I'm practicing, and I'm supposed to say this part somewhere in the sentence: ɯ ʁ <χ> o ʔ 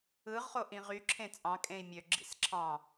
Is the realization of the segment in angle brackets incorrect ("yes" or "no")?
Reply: no